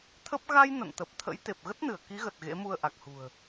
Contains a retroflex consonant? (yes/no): no